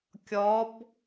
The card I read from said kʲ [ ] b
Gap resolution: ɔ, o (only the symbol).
ɔ